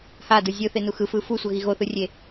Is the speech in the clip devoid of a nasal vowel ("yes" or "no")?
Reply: yes